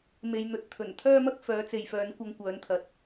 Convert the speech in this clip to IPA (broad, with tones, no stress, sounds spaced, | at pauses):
m e˨ j n̪ ɵ˨˥ t̚ t̪ʰ ɵ˨˩ n t̪ʰ œː˥ m ɐ˥ k̚ f œː˨˧ t͡s e˨ j f œː˨˧ n kʷ ɐ˧ ŋ kʷ œː˨˧ n t̪ʰ ɐ˨˥ t̚